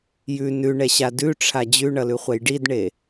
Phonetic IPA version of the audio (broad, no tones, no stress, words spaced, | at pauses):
jʉ nʉɳɛɕa dʉʈ͡ʂʰa d͡ʑʉɳʌlʉχʷɛj ɖidɳe